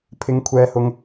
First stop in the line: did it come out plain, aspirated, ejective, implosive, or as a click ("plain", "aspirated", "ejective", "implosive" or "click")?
aspirated